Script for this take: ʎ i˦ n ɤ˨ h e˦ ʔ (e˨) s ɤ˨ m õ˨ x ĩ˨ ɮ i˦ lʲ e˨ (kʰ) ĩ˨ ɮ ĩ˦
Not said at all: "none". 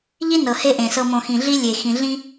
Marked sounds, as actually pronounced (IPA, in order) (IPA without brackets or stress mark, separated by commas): ẽ˨, x